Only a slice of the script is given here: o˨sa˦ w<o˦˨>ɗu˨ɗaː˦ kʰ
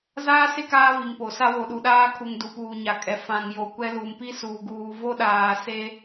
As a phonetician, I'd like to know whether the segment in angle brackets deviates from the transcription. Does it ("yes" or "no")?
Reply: yes